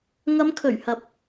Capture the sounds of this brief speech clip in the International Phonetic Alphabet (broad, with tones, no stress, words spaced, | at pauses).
ŋɐ˨˧mkʰɵ˨˩ɥhɐ˨˥p̚